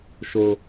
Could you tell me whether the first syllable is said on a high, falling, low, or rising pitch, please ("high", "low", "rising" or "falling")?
low